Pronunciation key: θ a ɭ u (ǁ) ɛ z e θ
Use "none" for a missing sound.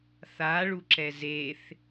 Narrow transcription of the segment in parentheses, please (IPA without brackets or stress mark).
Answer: ǁ